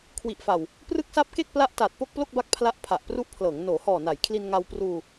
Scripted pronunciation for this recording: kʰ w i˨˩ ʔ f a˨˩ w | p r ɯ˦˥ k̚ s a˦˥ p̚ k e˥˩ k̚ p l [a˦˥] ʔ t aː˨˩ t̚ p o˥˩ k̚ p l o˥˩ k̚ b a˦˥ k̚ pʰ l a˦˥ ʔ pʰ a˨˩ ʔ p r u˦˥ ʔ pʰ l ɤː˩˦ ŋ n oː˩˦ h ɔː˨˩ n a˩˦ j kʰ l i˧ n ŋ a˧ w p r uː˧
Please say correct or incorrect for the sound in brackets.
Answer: correct